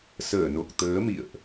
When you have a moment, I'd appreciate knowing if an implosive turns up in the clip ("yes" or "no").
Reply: no